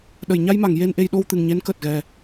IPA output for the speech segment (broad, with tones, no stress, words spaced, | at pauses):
ɗə˨˩˨jɲa˧jma˨˩˨ŋ je˧nʔe˧j ɗo˧wt̪ɨ˨˩ŋɲe˧˥n kəː˨˩t̚ɣɛ˨˩